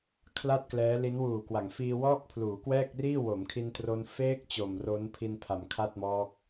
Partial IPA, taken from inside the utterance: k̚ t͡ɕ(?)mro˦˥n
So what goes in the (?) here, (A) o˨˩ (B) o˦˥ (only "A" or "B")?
A